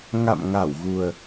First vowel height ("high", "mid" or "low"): low